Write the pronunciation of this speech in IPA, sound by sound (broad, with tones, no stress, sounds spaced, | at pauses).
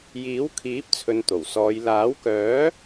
j iː˨˥ w kʰ iː˨˥ p̚ t͡sʰ ɵ˨˧ n t̪ o˨˩ w s ɔː˨˧ j l aː˨˥ w k œː˨˥